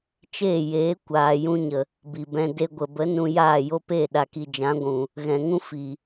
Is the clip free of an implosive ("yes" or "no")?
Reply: no